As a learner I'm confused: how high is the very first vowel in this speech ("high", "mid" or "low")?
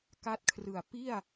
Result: low